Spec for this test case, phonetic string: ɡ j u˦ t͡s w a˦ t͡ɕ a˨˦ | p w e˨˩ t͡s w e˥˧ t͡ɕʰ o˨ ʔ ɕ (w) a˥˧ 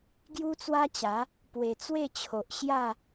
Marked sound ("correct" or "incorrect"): incorrect